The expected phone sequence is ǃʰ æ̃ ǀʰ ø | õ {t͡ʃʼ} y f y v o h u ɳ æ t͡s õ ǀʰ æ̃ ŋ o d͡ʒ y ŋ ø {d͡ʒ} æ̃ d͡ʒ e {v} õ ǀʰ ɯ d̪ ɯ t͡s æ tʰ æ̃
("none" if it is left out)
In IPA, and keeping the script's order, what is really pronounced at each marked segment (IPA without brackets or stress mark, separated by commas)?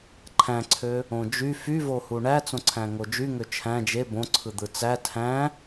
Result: d͡ʒ, t͡ʃʰ, b